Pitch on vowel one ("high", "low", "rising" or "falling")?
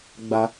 low